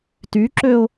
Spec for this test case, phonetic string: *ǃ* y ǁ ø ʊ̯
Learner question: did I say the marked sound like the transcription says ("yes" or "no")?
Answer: no